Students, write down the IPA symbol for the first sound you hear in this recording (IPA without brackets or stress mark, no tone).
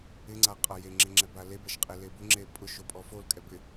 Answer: ɪ